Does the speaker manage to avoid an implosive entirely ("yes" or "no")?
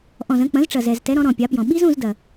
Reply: no